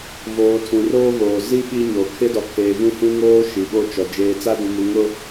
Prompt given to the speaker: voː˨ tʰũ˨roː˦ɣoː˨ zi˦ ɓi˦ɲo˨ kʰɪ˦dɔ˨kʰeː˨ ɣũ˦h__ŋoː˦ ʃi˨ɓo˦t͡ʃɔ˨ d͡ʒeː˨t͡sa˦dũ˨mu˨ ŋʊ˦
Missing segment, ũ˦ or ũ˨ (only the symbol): ũ˦